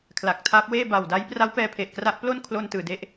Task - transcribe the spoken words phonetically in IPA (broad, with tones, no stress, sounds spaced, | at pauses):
kʰ l a˨˩ k̚ tʰ aː˦˥ p̚ w eː˥˩ b a˨˩ w d a˦˥ j p r a˦˥ w p ɛː˧ pʰ e˨˩ ʔ k r a˦˥ ʔ p l o˥˩ n kʰ l o˧ n t ɯː˨˩ d e˦˥ ʔ